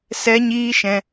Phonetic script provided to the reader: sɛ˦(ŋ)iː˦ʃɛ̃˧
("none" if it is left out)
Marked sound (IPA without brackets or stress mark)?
ɲ